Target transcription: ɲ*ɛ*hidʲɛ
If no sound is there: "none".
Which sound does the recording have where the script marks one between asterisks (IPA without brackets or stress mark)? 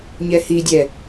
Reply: ɛ